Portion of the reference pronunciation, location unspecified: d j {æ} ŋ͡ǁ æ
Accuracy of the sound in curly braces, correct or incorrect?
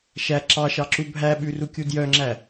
incorrect: œ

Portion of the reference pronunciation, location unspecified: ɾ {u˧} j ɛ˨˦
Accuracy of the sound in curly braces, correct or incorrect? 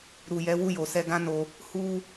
incorrect: u˨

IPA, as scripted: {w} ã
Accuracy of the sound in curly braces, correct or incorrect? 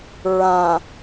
incorrect: ɹ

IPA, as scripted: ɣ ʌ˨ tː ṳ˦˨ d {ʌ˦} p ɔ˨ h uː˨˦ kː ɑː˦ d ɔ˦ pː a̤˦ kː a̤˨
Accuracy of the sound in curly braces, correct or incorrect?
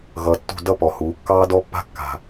correct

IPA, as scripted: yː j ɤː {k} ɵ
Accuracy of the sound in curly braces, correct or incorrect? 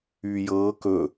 correct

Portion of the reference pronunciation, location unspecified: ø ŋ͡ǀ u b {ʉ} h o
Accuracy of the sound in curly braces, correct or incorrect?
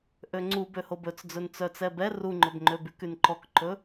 incorrect: ø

